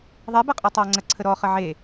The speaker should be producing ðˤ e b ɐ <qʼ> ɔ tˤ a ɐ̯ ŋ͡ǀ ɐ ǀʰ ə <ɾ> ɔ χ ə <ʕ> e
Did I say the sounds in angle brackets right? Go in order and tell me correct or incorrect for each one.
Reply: correct, correct, correct

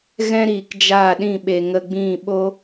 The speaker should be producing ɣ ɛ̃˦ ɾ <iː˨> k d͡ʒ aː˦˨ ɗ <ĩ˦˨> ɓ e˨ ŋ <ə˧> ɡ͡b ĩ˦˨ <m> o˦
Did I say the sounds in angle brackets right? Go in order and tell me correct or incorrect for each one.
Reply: correct, correct, correct, incorrect

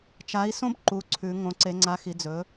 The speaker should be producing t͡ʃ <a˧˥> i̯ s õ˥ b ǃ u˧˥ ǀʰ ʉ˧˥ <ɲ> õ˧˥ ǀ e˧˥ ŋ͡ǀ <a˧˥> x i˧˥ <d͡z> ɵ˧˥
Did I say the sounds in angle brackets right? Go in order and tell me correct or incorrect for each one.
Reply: correct, incorrect, correct, correct

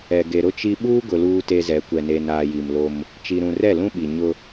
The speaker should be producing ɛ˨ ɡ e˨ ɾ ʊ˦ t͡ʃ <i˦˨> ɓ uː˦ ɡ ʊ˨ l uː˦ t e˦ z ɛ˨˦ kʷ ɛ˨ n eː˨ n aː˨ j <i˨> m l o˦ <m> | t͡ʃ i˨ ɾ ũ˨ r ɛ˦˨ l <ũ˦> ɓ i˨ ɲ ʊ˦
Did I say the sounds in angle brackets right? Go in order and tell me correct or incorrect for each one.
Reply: incorrect, correct, correct, correct

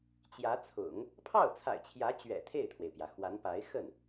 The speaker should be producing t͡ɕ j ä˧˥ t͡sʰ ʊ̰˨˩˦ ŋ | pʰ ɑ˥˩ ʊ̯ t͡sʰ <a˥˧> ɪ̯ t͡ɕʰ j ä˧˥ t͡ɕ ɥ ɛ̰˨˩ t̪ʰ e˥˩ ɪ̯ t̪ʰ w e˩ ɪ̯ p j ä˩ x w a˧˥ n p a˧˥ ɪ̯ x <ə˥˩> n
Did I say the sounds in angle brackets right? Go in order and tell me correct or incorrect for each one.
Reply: incorrect, correct

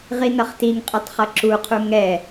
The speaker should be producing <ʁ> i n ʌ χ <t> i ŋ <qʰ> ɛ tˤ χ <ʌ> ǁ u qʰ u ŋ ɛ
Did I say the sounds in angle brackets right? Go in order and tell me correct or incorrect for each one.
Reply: correct, correct, incorrect, correct

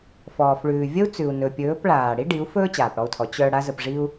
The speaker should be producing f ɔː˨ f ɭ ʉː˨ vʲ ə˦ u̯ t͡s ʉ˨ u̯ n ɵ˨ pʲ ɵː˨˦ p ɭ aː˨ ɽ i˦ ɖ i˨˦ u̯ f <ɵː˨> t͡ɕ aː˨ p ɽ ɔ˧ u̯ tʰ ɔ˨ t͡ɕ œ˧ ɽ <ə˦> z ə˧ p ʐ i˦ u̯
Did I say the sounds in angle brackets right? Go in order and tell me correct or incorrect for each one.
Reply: incorrect, incorrect

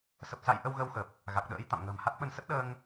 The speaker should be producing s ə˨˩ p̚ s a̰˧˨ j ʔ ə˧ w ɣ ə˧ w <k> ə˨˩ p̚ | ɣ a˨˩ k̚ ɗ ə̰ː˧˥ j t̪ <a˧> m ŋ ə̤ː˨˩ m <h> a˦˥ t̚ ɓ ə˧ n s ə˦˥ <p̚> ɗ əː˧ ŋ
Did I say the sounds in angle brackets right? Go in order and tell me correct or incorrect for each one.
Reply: incorrect, incorrect, correct, incorrect

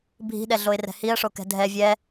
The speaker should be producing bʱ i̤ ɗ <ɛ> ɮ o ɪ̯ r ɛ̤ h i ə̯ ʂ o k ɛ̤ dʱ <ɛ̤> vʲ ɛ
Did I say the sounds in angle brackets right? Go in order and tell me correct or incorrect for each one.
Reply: correct, incorrect

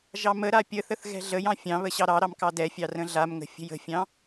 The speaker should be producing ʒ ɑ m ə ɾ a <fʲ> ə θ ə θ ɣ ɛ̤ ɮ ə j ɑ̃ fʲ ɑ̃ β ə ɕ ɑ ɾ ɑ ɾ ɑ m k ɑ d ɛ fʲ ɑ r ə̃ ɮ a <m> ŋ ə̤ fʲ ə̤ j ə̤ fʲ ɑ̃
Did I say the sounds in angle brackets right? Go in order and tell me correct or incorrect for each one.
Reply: incorrect, correct

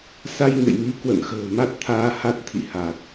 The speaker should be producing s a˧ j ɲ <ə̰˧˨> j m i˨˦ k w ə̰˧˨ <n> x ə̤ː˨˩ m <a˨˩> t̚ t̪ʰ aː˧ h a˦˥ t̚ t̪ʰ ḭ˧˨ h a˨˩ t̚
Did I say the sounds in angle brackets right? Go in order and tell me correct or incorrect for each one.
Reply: correct, correct, incorrect

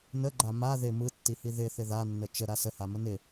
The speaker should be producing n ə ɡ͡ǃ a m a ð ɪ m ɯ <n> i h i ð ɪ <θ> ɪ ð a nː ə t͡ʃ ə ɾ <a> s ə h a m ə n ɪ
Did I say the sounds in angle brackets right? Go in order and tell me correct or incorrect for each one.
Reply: incorrect, correct, correct

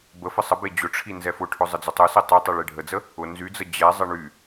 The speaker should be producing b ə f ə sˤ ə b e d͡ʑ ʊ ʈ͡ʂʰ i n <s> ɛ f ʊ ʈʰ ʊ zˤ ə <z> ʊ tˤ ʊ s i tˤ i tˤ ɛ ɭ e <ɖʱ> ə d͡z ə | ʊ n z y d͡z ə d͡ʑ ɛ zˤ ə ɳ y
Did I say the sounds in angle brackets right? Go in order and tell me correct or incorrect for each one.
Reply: incorrect, incorrect, correct

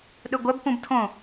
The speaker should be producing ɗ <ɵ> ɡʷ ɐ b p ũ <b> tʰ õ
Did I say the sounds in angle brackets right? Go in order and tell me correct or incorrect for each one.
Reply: correct, correct

